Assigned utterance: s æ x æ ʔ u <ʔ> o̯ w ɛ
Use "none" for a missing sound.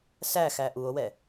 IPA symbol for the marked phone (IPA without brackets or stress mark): none